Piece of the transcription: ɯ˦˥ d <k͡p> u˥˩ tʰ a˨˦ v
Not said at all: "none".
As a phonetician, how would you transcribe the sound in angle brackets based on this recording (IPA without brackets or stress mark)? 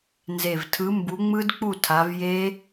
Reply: k͡p